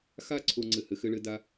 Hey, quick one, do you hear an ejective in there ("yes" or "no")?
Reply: no